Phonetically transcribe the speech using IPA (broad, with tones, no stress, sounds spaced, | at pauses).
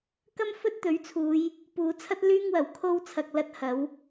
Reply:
k ɐ˥ m f ɵ˥ t̚ t̪ ɵ˨˥ ɥ t͡sʰ uː˨˧ j | p uː˨˧ t͡sʰ ɐ˥ t̚ l yː˥ ŋ w ɐ˨˩ w kʰ o˥ w t͡sʰ ɐ˨ k̚ l ɐ˥ t̚ h ɐ˨˥ w